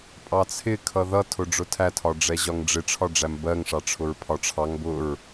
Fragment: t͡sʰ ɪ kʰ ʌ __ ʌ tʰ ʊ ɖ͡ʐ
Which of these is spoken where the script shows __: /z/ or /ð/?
ð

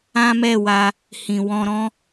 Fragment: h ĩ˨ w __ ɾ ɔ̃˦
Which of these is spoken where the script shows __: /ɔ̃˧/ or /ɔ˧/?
ɔ̃˧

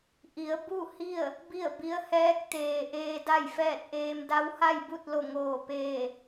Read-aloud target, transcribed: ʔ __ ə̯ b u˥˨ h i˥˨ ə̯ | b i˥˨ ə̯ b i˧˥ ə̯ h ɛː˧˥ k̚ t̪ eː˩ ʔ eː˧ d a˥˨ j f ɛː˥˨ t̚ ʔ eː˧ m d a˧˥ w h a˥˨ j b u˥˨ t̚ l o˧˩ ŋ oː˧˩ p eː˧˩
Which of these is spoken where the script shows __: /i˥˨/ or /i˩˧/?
i˩˧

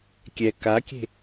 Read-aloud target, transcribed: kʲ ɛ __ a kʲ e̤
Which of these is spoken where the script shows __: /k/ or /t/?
k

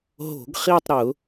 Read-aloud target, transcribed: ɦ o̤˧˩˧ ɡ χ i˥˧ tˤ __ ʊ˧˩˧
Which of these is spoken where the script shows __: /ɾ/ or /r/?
ɾ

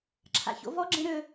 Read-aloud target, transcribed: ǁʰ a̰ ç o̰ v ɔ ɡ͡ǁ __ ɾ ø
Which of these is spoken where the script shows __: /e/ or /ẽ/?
ẽ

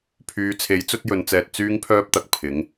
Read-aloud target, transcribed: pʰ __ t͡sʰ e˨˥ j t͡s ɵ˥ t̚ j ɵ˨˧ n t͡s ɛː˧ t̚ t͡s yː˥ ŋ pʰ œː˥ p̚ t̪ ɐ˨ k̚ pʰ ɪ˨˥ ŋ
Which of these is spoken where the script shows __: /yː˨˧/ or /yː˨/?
yː˨˧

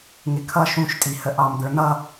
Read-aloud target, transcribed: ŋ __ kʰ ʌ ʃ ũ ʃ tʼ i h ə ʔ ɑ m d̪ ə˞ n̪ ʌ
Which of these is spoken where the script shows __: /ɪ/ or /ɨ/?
ɪ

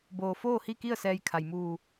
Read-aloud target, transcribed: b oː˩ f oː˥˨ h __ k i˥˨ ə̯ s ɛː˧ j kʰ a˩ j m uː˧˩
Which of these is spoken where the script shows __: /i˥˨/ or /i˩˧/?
i˥˨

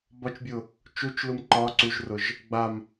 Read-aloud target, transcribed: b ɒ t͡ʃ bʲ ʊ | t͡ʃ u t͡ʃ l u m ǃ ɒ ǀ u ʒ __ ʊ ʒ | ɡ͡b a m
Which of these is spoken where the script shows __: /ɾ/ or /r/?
r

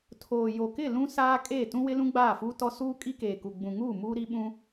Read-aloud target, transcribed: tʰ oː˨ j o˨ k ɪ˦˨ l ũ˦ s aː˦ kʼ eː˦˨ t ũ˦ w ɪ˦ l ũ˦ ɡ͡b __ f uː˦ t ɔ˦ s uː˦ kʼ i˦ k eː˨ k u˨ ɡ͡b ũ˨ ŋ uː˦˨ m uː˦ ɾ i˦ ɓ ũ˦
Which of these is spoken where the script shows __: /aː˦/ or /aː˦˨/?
aː˦˨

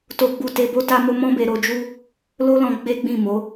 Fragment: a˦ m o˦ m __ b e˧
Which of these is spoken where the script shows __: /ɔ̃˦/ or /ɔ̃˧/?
ɔ̃˦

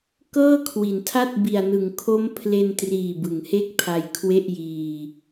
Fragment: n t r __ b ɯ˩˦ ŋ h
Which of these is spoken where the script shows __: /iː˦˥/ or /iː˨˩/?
iː˨˩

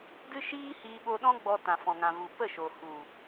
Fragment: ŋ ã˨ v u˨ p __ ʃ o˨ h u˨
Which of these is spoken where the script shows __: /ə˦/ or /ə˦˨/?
ə˦˨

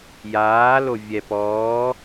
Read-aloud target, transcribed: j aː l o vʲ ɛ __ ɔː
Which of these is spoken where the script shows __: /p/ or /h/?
p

